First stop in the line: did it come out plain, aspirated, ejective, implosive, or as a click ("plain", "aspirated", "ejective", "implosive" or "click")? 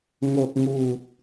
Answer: plain